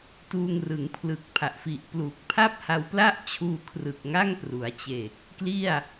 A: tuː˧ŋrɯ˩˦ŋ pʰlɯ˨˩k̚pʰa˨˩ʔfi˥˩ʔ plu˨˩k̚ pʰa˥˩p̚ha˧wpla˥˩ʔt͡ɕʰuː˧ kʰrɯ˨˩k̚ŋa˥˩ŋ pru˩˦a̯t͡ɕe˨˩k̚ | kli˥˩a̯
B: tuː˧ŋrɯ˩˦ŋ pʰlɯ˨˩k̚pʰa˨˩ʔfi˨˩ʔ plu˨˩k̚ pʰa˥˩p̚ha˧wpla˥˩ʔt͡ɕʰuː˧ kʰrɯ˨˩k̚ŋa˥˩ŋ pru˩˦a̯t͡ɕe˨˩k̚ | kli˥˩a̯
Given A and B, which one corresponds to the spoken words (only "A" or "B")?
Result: B